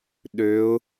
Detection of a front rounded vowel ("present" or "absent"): present